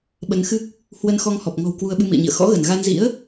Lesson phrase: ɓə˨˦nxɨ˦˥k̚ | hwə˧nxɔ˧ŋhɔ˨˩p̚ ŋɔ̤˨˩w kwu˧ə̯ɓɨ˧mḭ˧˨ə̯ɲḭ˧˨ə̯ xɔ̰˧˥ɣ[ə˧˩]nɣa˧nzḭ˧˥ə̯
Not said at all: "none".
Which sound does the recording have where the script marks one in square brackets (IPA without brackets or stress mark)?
ə˧˩